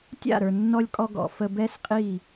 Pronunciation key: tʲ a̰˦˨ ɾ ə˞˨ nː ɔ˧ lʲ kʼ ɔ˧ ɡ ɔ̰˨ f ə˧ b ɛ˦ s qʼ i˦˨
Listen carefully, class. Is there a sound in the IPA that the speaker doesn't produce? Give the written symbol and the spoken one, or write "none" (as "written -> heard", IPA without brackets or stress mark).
none